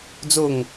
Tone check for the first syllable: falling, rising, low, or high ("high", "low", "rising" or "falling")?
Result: falling